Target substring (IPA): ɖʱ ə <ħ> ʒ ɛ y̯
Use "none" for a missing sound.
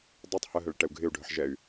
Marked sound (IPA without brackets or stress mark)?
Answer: ħ